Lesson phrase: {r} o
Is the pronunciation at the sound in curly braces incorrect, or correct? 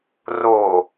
correct